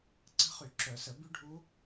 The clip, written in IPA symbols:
ǀ ə̤˦˥ χ y˧˩˧ ǁ œ˧˩˧ s ə˧˩˧ b y˦˥ ɖʱ u˦˥

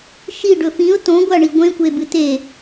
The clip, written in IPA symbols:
ʃ i ɖ ɵ f ĩ ʊ̯ t õ ɡʷ a ɳ i ɡʷ ẽ kʷ e b ɨ t e

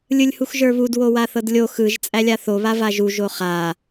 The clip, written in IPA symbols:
lʲ ɯ lʲ h u x ʒ ə˞ β u d w o w a θ ɤ d lʲ o x ɯ ʒ t͡sʼ æ lʲ a θ o β a v a ʒ u ʒ o χ a

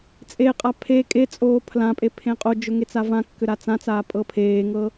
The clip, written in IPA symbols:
t͡sʼ e qʼ a pʰ e kʼ e t͡sʼ oː pʰ l ã pʼ e pʰ ẽ qʼ o d͡ʒ ɵ ŋ e t͡s a v ã kː ʏ ɾ a t͡s ã t͡s aː pʼ ɤ pʰ eː ŋ ɤ

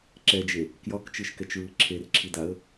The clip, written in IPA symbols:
ǁ ɛ d͡ʒ e | k j ɒ k t͡ʃ ɯ ʃ k ɛ t͡ʃ ɹ ɯ ǁʰ e r ǁʰ i d a ə̯

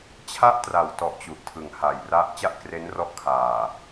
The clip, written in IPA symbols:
t͡ɕʰ a˥˩ ʔ t r a˩˦ w t ɔ˨˩ ʔ t͡ɕ u˨˩ ʔ tʰ ɯ˩˦ ŋ h a˨˩ j r a˦˥ ʔ t͡ɕ a˥˩ ʔ k r e˦˥ n r ɔ˦˥ ʔ kʰ aː˨˩

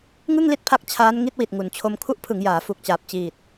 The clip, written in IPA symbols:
ŋ ɯ˥˩ ŋ l i˥˩ t̚ pʰ a˦˥ k̚ t͡ɕʰ aː˦˥ n ŋ i˦˥ t̚ w i˨˩ t̚ ŋ u˨˩ n t͡ɕʰ o˧ m kʰ u˦˥ ʔ pʰ ɯ˩˦ ŋ j aː˩˦ f u˨˩ k̚ t͡ɕ aː˨˩ p̚ t͡ɕ iː˨˩ t̚

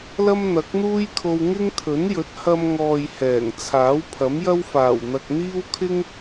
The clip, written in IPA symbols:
l ɐ˥ m n̪ ɐ˨˥ k̚ n̪ uː˥ j kʰ o˧ w ŋ ɪ˥ ŋ t̪ʰ ɵ˨˥ n j ɵ˨˥ t̚ h ɐ˧ m ŋ ɔː˨ j h ɛː˨˩ ŋ t͡sʰ aː˨˥ w pʰ ɐ˨˥ m j ɐ˥ w f aː˨˩ w n̪ ɐ˨ k̚ n̪ iː˥ w kʰ ɪ˥ ŋ

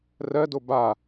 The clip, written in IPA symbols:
r ɜ d o b a

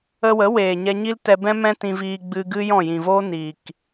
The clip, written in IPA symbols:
ə˧ w ə˨˦ w eː˨ ɲ ɛ˧ ɲ i˦ l t ɛ˧ b ɛ̃˦ m ɛ̃˦ t ĩ˧ v iː˧ ɡ͡b ɨ˧ ɡ ɨ˦ j ɔ̃˦˨ j ĩ˨ v oː˦ n iː˨ k

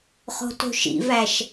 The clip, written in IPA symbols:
χ o̤ t o̤ ʃ ḭ v æ ʃ

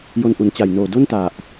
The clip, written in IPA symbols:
j o˧ n ʔ u˩˦ n t͡ɕ a˨˩ j n oː˨˩ d o˥˩ n t a˨˩ ʔ

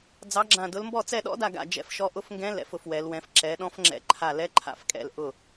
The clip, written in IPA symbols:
d͡z ɑ˧˥ ɡ͡ǁ ã˦˨ d ʊ˧˥ l m b ɔ˦˨ t͡s ɛ˦˨ ɗ ɔ̰˧˥ d a˦˨ ɡ a̰˦˨ d͡ʒ ɛ̰˧˥ f ʃ ɔ˧˥ ʔ ʊ˧˥ f ŋ ɡ ɛ̃˧˥ l ɛ̰˧˥ f ʊ˧˥ f w ɛ˧˥ l w ɛ̃˧˥ f ǁ ɛ˧˥ ɗ ɔ̃˧˥ f ŋ͡ǁ ɛ̰˧˥ ǃʰ a˦˨ l ɛ˧˥ ǃʰ a̰˦˨ f kʼ ɛ̰˦˨ l ʔ ʊ˦˨

